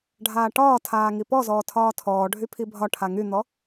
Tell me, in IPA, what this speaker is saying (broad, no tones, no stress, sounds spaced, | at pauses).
ɖʱ aː ʈ ɒː tʰ aː ŋ i p ɔ z ɔː tʰ ɒː tʰ ɔː ɖʱ y pʰ i bʱ ɒ ʈʰ a ŋ y n̪ ɔ